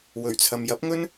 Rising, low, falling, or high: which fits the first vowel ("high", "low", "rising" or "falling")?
low